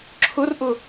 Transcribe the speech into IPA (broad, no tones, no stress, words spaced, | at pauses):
ǁʰʊrʔʊ